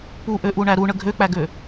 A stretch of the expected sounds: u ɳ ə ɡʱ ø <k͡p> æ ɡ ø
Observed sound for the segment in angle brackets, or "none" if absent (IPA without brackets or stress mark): k͡p